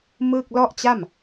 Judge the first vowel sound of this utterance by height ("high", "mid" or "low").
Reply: high